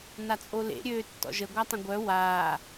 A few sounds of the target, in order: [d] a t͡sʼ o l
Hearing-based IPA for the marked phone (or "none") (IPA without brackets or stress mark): n